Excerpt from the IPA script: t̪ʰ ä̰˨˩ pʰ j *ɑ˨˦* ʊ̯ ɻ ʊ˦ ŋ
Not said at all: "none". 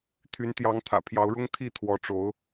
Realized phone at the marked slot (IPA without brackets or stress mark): ɑ˨˦